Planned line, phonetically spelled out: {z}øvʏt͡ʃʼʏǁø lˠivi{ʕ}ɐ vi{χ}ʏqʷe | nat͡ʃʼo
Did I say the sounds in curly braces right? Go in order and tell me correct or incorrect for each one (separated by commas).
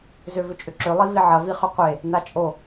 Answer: correct, correct, correct